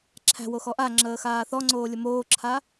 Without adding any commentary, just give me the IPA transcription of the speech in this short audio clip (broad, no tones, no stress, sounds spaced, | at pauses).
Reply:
ǁʰ æ̤ w o x ɔ ʔ a ŋ͡ǁ əː x aː θ ɔ ŋ͡ǀ oː lʲ ə m oː ǁʰ a